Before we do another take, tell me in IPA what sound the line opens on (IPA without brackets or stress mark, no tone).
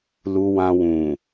l